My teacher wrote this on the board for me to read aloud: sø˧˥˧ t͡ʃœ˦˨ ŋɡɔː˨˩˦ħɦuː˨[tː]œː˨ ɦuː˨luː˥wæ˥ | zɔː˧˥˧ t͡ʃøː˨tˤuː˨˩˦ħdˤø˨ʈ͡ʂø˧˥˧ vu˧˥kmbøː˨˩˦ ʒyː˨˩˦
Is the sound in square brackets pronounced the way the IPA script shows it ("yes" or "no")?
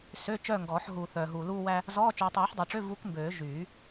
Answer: no